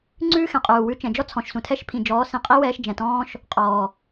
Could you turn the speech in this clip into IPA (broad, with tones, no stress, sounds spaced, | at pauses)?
ŋ͡ǀ ʉː˦ x ɛ̃˨ qʼ uː˨ w ʉ˧ t͡ʃ ɛ̃˨ d͡ʒ ɔ˦ t͡sʰ ɔ̃˨ ʃ s ũ˨ tʰ ɛ˦ ʃ pʰ ĩ˨ d͡ʒ ɔː˨˦ s ĩ˨ qʼ i˦ w ɛː˧ ʃ d͡ʒ ɛ̃˨ t ɔ̃ː˦ ʃ | qʼ ɔː˨